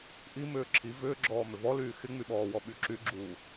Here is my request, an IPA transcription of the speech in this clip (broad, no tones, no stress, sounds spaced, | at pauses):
ʔ i m ʏː ǁʰ i v ʏː ɡ͡ǁ ɔː m ʏ v ɔ l yː x ɪ ŋ͡m y ɓ ɔː w ɔ ɓ y ǁ y ɡ͡ǁ uː